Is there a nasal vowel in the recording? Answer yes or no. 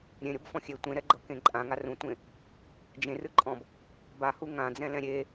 yes